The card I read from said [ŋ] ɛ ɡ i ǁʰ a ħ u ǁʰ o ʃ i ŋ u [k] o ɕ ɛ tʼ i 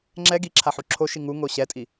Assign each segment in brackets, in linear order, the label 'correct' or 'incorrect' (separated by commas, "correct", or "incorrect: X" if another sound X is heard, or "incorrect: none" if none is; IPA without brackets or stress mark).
incorrect: ŋ͡ǁ, incorrect: ŋ